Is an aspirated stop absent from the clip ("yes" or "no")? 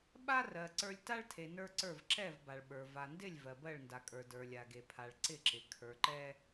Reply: no